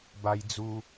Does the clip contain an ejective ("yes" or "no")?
no